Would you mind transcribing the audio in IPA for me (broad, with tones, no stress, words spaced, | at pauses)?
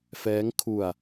fɛː˦˥ŋkʰu˧a̯